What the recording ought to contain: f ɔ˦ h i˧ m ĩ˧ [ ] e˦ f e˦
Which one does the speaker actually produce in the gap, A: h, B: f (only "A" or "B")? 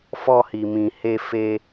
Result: A